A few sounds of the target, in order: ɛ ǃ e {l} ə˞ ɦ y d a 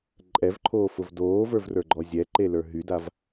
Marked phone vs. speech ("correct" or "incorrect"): correct